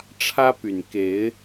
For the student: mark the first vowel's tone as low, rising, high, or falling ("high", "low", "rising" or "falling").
high